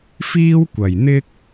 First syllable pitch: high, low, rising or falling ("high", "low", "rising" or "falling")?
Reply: high